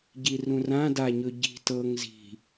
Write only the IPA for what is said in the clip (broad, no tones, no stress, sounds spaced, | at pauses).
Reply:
ɟ i r ũ r ã d a ɲ ɵ ɟ i̤ t ɤ ŋ z i̤